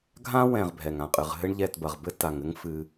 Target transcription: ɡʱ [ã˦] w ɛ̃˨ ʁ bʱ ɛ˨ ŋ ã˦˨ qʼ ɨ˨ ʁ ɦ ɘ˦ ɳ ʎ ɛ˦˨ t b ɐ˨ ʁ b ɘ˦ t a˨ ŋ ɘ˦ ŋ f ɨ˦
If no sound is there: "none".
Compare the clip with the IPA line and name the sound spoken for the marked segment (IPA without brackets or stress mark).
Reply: ã˦